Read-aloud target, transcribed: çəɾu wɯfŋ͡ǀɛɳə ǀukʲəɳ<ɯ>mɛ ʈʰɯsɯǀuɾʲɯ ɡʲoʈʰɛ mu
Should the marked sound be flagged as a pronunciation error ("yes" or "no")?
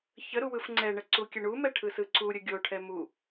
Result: yes